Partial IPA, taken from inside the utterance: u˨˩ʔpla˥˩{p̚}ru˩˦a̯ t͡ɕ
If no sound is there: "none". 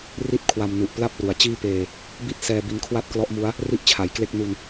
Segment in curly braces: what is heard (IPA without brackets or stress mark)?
p̚